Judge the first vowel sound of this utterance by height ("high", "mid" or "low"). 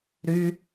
high